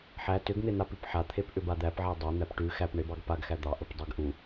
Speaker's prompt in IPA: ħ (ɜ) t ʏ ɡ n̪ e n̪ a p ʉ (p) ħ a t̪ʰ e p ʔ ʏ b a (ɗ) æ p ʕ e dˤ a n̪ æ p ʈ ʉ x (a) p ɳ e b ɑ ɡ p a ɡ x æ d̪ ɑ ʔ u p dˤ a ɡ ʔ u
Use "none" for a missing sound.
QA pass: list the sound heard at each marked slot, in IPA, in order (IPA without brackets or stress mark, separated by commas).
æ, p, d̪, æ